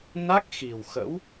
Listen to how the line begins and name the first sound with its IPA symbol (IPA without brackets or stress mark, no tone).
n